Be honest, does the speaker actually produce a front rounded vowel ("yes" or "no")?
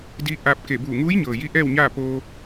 no